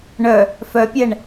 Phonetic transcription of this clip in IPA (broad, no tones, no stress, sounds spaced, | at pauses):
ɳ œ | f œ pʲ ɛ ɳ